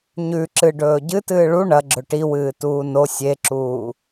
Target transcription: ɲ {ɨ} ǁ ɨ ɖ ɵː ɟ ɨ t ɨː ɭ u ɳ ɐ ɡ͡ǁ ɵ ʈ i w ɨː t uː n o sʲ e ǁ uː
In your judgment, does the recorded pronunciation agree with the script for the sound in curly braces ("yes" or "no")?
no